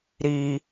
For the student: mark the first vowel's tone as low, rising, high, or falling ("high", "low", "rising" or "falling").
low